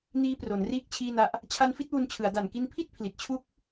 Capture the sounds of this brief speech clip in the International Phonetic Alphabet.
n iː˦˥ p r o˩˦ n r iː˦˥ k̚ t͡ɕʰ iː˥˩ n a˦˥ ʔ | t͡ɕʰ a˦˥ n f i˦˥ t̚ w u˧ n t͡ɕʰ ɯ˩˦ a̯ d a˨˩ n k i˧ n pʰ i˥˩ t̚ pʰ l i˨˩ t̚ t͡ɕʰ u˦˥ k̚

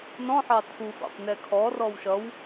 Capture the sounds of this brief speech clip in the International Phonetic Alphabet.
n ɔ̃ ħ ɑ tʰ u f ɑ̰ p n ɛ kʰ ɔ r ɔ w ʃ ʌ w

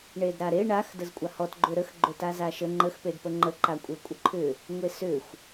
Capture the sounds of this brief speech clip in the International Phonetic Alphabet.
ɳ e d ɾ a ɾ e ɳ a x d ə z kʷʼ a h ɔ t ɡ͡ǃ ʏ ɾ ə x ɡ͡ǃ ʏ t a z a ʃ ə ŋ͡ǃ ə x p e d p ə ŋ͡ǃ ə ǃ a kʷʼ e kʷʼ ə ǃʰ ʏ | ŋʷ e s ʏ xʷ

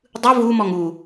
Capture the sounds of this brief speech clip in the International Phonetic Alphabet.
dˤ ɯ v u m ɔ ŋ u

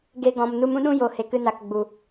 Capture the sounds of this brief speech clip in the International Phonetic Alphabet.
ɡ e˧ ɡ ɔ̃˨ m n u˧ m ũ˦ ɗ ũ˦ j o˨ h e˨ k ɨ˧ n a˨ k ɡ͡b u˨

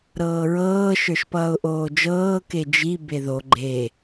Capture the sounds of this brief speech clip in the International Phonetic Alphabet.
ɾ ɤː ɹ ɤː ʃ ə˞ ʃ p ʌː ʊ̯ ʔ oː d͡ʒ ɤː k e d͡ʒ i b e ð o ɡ͡ǃ e

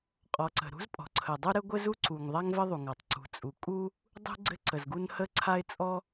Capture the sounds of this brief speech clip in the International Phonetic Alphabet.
qʼ ɔ˩ ǀ ə̤˩ ɾ ṳ˥ z pʼ ɔ̤˩ ǀʰ ə˩ dˤ u˥ ɾ ɘ˥ ɡʷ ɘ˥ z u˥ ǀ u˩ ŋ ðˤ a˥ ŋ v ɘ˥ ðˤ u˩ ŋ a˩ tˤ ǀ ṳ˩ t͡sʼ u˩ kʼ u˥ | dˤ ṳ˥ ɡ͡ǀ ɘ˥ ǀ ə˩ z ɡ u˥ n h ə˥ ǀʰ a˥ ɪ̯ t͡sʼ ɔ˥

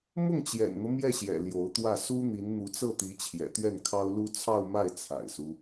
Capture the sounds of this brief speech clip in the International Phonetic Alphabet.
m ʊ˥˩ ŋ t͡ɕ j ɛ̰˨˩ n n̪ ɤ˦ m j ɛ˥˩ ɕ j ɛ̰˨˩ l j o˧˥ ʊ̯ t̪ w ä˥˩ s u˥ n̪ i˧˥ n n̪ u˧˥ t͡s ɤ˥˩ t̪ i˧˥ t͡ɕʰ j ɛ̰˨˩ t̪ ɥ ɛ˥˩ n kʰ ɑ˥ ʊ̯ l u˥ t͡sʰ ɑ˥˧ ʊ̯ m a˥˩ ɪ̯ t͡sʰ a̰˨˩ ɪ̯ s u˦

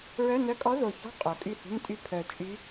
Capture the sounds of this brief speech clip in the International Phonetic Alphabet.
ɹ œ˧˥˧ n œ˧˥˧ kʼ ɔ˧˥ ð o˨˩ ç ɔ̤˧˥˧ qʼ o˨˩ kʼ y˥˩ h ṳ˧˥˧ n tʼ y˥˩ pʰ œ˨˩ t͡ʃʼ y˧˥

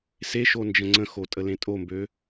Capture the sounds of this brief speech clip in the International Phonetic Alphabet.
s e ʃ o n d͡ʒ ə̃ ŋ͡ǀ ə̃ x o tʼ ə l ẽ tʼ o m b ø

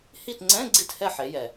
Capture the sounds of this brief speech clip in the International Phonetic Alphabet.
h i˦˨ t ŋ͡ǀ ɛ̃˧˥˧ ɡ͡ǀ i˦˨ t h ɛ˦˨ ħ e˩˧ j ɛ˩

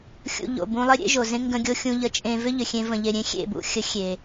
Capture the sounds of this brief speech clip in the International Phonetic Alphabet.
xʲ ṵ˧ ʎ o̰˨ b ũ˧ lˠ ɪ˦ ɾʲ ḛ˦ ʒ o˨ z ẽ˦ ŋ ɡ ə̃˧ ɡʲ o˧ xʲ ũ˧ ʎ ə˧ t͡ʃʼ ẽ˧ v ʏ˦ ʎ ʏ˨ xʲ ẽ˧ v ə̃˨ ʎ e˨ ɾʲ ẽ˦ xʲ ḛ˦˨ b ṵ˦ xʲ ə˨˦ xʲ e˨

